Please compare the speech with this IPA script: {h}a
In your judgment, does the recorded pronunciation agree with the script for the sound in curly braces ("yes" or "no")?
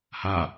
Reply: yes